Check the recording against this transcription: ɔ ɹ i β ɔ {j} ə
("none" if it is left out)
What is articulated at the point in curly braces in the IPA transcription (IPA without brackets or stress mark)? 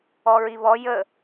j